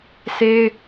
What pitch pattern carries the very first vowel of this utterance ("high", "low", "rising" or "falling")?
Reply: high